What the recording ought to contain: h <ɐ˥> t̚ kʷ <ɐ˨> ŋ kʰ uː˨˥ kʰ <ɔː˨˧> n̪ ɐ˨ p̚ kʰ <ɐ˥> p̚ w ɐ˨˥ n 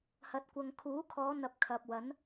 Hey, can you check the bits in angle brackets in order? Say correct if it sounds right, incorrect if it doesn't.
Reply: incorrect: ɐ˨˥, correct, correct, incorrect: ɐ˨

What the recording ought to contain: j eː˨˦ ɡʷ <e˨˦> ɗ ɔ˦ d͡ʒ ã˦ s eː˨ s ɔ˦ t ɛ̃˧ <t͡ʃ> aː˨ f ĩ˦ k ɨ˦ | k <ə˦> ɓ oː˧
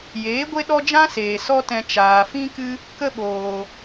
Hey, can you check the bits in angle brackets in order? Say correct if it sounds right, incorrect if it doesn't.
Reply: incorrect: e˦, correct, correct

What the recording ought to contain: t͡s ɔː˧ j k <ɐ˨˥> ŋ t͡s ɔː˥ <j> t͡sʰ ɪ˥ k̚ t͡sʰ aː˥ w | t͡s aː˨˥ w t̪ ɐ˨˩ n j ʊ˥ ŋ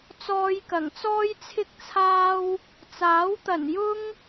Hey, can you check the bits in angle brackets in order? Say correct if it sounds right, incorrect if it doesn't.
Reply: incorrect: ɐ˨˩, correct

